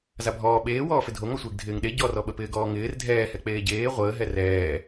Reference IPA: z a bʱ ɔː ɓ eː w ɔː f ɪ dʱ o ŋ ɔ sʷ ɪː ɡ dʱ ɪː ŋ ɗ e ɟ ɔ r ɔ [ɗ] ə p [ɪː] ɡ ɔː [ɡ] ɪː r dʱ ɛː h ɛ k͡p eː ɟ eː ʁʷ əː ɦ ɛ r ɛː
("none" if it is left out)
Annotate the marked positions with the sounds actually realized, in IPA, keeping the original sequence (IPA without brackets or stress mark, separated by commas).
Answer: ɓ, ɪː, ŋ